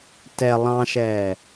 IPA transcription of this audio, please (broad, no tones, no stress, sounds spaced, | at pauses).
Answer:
t ɛ lˠ ɑ̃ ʃ ɛː